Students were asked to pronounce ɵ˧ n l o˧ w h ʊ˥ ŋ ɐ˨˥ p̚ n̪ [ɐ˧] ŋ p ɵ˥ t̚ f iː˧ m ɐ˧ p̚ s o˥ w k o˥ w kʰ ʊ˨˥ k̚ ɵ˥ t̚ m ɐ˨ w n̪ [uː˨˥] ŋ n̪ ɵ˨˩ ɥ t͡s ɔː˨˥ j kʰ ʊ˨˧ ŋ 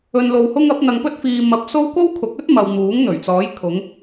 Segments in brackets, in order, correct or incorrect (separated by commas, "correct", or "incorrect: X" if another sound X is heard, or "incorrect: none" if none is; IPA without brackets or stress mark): correct, correct